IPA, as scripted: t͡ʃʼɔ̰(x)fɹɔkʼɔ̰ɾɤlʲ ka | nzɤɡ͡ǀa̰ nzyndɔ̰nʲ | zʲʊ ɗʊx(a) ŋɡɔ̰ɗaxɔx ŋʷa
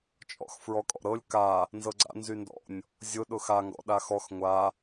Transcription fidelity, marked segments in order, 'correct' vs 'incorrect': correct, correct

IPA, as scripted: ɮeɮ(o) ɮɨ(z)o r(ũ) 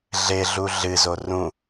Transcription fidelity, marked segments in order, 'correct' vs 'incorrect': incorrect: u, correct, correct

